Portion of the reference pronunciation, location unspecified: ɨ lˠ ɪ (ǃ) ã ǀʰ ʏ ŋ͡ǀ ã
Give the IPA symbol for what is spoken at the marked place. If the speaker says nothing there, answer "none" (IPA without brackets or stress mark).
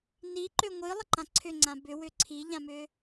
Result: ǃ